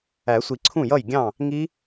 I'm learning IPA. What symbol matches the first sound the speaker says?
æ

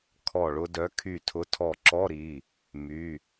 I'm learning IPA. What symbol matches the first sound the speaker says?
kʰ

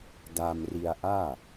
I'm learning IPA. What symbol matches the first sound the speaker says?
d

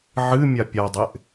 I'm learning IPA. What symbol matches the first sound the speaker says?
ʕ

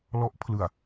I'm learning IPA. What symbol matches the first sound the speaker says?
l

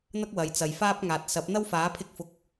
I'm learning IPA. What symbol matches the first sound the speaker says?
n̪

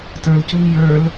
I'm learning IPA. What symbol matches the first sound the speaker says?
t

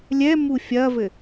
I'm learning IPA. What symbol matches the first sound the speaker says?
lʲ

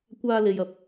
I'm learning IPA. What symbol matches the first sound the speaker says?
kʷ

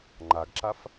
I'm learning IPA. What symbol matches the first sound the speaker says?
ŋ͡ǃ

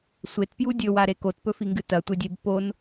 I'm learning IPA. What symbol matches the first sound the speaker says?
sʷ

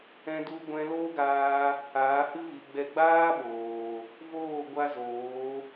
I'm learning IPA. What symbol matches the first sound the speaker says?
ɛ̃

